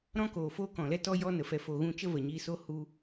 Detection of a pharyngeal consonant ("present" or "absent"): absent